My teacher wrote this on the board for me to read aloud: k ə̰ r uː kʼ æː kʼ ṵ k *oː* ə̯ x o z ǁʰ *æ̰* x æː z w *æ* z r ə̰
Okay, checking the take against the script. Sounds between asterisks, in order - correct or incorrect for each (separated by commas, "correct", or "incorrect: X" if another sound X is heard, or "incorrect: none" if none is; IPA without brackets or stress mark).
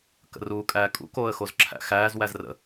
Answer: correct, correct, correct